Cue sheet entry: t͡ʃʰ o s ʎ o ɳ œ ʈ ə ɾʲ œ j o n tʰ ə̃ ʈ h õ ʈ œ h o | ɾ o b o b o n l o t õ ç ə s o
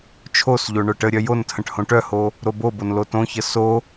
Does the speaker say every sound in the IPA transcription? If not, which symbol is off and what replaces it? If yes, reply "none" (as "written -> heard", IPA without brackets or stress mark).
none